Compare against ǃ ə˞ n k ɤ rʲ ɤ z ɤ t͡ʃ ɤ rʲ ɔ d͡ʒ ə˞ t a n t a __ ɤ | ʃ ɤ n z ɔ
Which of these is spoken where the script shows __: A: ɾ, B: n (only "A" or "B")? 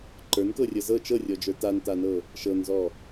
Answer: B